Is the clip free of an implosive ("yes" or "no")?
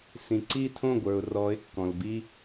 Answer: yes